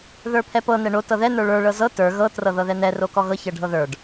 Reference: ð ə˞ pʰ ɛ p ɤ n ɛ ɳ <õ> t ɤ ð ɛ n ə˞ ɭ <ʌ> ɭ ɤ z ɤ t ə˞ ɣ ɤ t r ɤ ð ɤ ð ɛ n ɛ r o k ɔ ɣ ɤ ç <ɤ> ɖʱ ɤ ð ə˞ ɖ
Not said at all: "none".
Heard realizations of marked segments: o, ə˞, ɤ

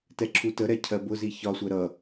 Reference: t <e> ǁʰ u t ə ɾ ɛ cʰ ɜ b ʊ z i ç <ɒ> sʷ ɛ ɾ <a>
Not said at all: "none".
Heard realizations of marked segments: ɛ, ɒ, ʌ

